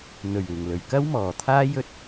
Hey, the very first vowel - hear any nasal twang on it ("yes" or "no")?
no